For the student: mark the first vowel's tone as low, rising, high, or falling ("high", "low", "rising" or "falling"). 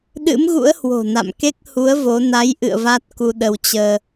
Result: rising